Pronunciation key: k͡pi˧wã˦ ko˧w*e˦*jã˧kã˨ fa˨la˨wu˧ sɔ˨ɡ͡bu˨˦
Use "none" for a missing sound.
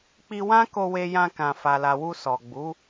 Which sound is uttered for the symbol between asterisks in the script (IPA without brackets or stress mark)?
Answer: e˧